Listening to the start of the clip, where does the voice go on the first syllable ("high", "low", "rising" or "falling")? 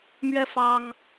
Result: high